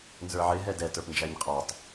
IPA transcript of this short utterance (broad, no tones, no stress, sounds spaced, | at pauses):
n z ə˞ ʕ ɪ ɦ ɛ d ɛ t ə˞ p n d͡ʒ æ ɲ qʼ ɑ tˤ